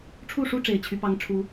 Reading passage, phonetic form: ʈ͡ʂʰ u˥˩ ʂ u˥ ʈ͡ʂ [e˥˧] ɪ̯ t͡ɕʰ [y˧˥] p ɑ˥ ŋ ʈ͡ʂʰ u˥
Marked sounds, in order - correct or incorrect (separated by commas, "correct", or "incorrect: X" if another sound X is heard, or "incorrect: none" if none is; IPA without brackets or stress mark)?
incorrect: e˨˩, correct